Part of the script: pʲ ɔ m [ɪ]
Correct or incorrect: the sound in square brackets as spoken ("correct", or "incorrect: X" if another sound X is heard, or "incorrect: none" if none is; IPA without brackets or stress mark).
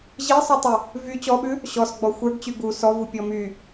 incorrect: y